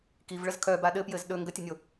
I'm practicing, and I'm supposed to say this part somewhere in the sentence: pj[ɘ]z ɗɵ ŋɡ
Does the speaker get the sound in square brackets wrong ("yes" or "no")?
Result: no